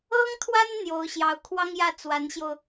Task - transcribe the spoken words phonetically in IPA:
ɤ˥ ŋ t̪ʰ w a˥ n n̪ j o˧˥ ʊ̯ ɕ j ɑ˧˥ ʊ̯ kʰ w ɑ˥ ŋ j ä˥˩ t͡s w a˧˥ n ɕ j o˧ ʊ̯

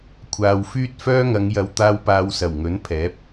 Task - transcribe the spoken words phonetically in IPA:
kʷʰ aː˨ w f yː˥ t̚ f œː˥ ŋ ɐ˨˧ ŋ j ɐ˨ w t̪ aː˧ w p aː˨˧ w s ɐ˨˩ w ŋ ɵ˨˥ n pʰ ɛː˨˥ p̚

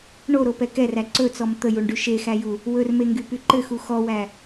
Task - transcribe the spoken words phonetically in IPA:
ɳ o ɾ o p ɛ k ɛ r æ ǀ ɵ t͡s ɔ m t̪ ə j u ɳ ɖ y ʃ e x æ j u | w ɵ r m e ŋ ɡ y p y ǃ ɘ x u x ɔ w æ

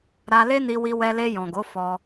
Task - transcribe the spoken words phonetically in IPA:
ɾ a˧ l e˦ n i˧ w i˧ w ɛ˧ l e˧ j ɔ̃˨ ɡ o˨˦ f ɔ˧

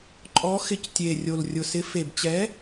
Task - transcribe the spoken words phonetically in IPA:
ǃʼ ɔ˨˥ x ɪ˨˥ c tʲ e˨˩ rʲ o˨˩ l rʲ ʊ˨˩ s ɪ˨˥ f e˨˩ b t͡ɕ ɛ˨˥

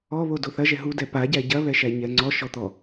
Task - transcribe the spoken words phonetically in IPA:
ɔ β o d o θ ɐ ʒ ɛ ɦ u d ɛ p a ɟ æ ɟ ɐ β ɛ ʃ æ ɲ ɛ ŋ͡ǀ ɔ ʃ ɔ t̪ ɔ

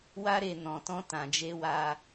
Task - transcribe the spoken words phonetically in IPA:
w a˧ ɾ e˨ n ɔ̃˨ t ɔ̃˧ t ã˨ d͡ʒ e˧ w a˧

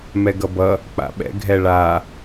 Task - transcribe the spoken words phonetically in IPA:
m ɛ ɡ ʌ b ʌ | k͡p a̰ ɓ ɛ̰ ɡʱ ɛ ɭ a

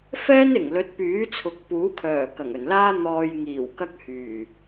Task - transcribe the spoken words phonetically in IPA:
f ɛː˥ n ɪ˨˩ ŋ l ɵ˨˥ t̚ p yː˨˥ t͡sʰ ʊ˨ k̚ p uː˨˥ kʰ œː˨˩ k ɐ˨˩ ŋ ɵ˨˩ n l aː˥ n̪ ɔː˧ j ŋ iː˨˩ w k ɐ˥ k̚ h yː˨˩

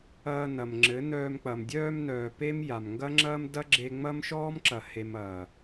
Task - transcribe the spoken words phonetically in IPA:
ɐː˧ n ɐ˨ m ŋ͡ǁ ɘ˨˦ n œː˧ m k͡p ɐ˨ m dʲ œː˧ m n œː˨ p e˦ m j a˨ m ŋ ɡ ɐ˦ ŋ͡ǁ ɐː˦ m d ɐ˦ ɡ͡ǁ e˧ ŋ͡m ɐ˦ m ʃ ɔː˦ m ǁ ɐ˨ h e˨ m ɐː˨

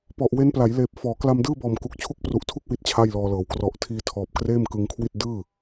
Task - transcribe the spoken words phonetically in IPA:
p ɔ˨˩ ʔ w e˦˥ n p l a˩˦ j l eː˨˩ p̚ f ɔː˩˦ k l a˧ m d ɯː˥˩ b ɔː˨˩ m k u˨˩ k̚ t͡ɕʰ u˦˥ k̚ p r u˨˩ ʔ tʰ u˥˩ k̚ w i˦˥ t̚ t͡ɕʰ a˥˩ j l ɔː˧ l ɤː˩˦ w k r ɔ˨˩ ʔ tʰ iː˧ tʰ ɔː˨˩ p̚ k r eː˥˩ m k ɯ˧ ŋ kʰ w i˥˩ t̚ d ɯː˥˩

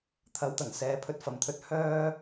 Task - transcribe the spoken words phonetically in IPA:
t̪ʰ ɐ˨˧ w t̪ ɐ˨˩ ŋ s ɛː˨˧ pʰ ɵ˧ t̚ f ɐ˨ m t̪ʰ ɵ˧ t̚ h œː˥

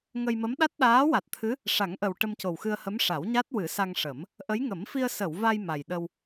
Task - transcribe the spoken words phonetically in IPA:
ŋ ə˧ j m ə˧˥ m ɗ a˦˥ t̚ ɗ aː˧˥ w a˨˩ t̚ t̪ʰ ɨ˧˥ | ʂ a˨˩˦ ŋ ʔ ə˨˩ w ʈ ə˧ m c o˨˩ w x ɨ˧ ə̯ h ə˧˥ m ʂ a˨˩˦ w ɲ a˦˥ t̚ w ɨ˨˩˦ s a˧ ŋ ʂ ə˨˩˦ m | ʔ ə˧˥ j ŋ ə˨˩˦ m f i˧ ə̯ s ə˨˩˨ w v a˧ j m a˨˩ j ɗ ə˧ w

